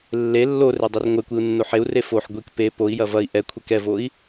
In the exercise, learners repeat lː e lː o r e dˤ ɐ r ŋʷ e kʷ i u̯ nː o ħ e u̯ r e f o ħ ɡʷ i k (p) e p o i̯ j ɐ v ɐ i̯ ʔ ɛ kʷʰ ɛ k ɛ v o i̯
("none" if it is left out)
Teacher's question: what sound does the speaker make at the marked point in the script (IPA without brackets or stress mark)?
p